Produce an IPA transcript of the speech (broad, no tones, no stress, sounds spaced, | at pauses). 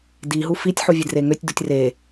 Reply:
d i ɦ u f i tʲ ħ u vʲ e d r e ŋ ø tʲ d u tʲ r e